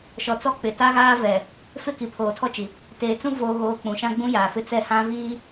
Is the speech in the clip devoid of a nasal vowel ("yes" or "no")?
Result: no